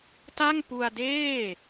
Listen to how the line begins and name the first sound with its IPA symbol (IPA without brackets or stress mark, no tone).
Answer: t